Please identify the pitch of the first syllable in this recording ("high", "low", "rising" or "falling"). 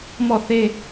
falling